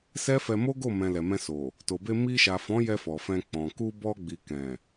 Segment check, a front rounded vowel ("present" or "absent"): absent